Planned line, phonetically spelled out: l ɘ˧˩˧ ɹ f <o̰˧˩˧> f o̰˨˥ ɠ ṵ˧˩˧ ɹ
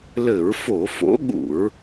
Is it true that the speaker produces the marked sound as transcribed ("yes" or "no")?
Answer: no